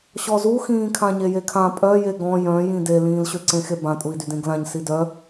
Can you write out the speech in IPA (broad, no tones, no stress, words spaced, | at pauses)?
ɕɔzuxĩː kʰãɲejekʰã pʼœ jeɡɔ̃ jœ̃jĩ delĩːlɕøǀẽ xebã tʼui̯dydẽɡlãɲ sidœ